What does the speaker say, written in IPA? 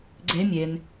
ɡ͡ǀ e mʲ e n

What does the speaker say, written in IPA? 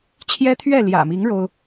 t͡ɕʰ j ɛ˦ t̪ʰ ɥ ɛ˥˨ l j ä̰˨˩ m i˨˦ ŋ ɻ o˦ ʊ̯

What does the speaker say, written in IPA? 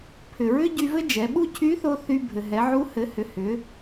pʰ ʏ˩ ɹ ʏ˥ ɟ y˧ v ɘ˥ d͡ʒ ɛ˩˧ ɓ u˥ cʰ y˧˥ θ o˧ θ y˧ bʱ ɘ˩ ɦ ɛ˩˧ ʕ u˧˥ h ɘ˩˧ h ʏ˩ h ʏ˩˧

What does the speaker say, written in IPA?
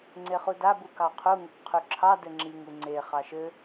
ŋ͡ǀ e χ u d a b u k ɑ qʰ u ŋ ɘ k qʰ y ǁʰ ɑ d ɘ ŋ͡ǁ i ŋ u ŋ͡ǀ e χ ɑ ʃ ɘ

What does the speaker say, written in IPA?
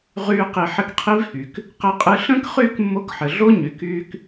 ʁ yː˦ q i˧ ħ ɘ˦ k qʰ i˦ v h y˨ k | q ɘ˧ qʼ ɨ˧ ɬ ə̃ː˦ k χ yː˧ k mː o˧ k ħ ɘ˨ ɮ o˦ ɲ y˨ k yː˧ k

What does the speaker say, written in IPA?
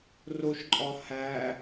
r o ʃ ǃʼ ɒ h æ

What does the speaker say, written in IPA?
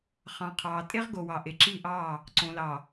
χ ɑ̃˨ qʰ ɑː˨ tʼ e˦ ʁ ɡ o˨ w ɑ˨ ʔ e˨ ǁ i˦˨ ʔ ɑ˦˨ | ǀ õ˨ l ɑ˨

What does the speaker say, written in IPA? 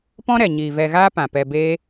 p ɔ̃˦ ɾ ɛ˨ ɲ iː˨ v ɛ˧ ɣ aː˦ p ã˨ p ɛ˧ b eː˦

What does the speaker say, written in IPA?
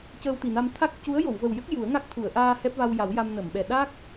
c əː˧ w t̪ i˨˩ n a˧ m t̪ʰ a˦˥ k̚ c u˧˥ ə̯ j o˨˩˨ w v ə˨˩ w j ə˦˥ k̚ j u˨˩˦ ə̯ ŋ a˦˥ k̚ t̪ʰ u˨˩˨ ə̯ ʔ aː˧ h ɛ˦˥ p̚ v a˧ w j a˨˩˦ w j a˧ m n ə˨˩˨ m ɓ ɛ˨˩ ɗ a˦˥ k̚

